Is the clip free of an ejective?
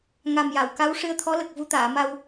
yes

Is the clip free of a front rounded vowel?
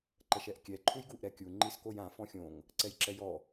yes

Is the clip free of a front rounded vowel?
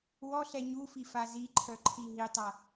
no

